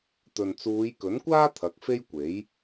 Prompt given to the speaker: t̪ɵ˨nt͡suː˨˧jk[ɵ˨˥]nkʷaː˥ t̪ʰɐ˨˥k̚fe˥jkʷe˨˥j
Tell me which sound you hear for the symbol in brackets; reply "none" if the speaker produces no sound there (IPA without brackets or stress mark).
ɵ˨˥